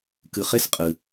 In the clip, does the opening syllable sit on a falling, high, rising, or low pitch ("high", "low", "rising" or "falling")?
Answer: low